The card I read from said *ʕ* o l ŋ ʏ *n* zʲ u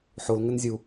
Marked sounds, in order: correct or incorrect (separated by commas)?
incorrect, correct